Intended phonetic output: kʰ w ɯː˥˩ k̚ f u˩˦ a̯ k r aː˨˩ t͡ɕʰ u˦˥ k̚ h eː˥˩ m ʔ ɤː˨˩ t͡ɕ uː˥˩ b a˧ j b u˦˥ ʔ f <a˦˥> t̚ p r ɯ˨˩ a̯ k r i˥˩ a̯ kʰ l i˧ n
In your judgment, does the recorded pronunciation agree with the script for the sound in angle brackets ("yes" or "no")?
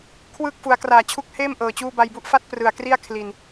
yes